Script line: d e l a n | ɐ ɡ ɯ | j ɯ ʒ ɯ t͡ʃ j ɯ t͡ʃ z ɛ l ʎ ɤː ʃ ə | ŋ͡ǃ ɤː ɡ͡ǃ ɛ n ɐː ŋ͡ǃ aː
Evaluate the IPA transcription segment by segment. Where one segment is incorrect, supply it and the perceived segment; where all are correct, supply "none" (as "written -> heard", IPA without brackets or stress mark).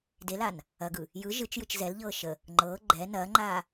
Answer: none